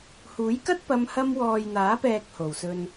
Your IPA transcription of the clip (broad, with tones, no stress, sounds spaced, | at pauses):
h uː˨˥ j k ɐ˥ t̚ p ɐ˧ m h ɐ˧ m w ɔː˨ j n̪ aː˨˥ p ɛː˨ k̚ h o˨˩ w s ɵ˧ n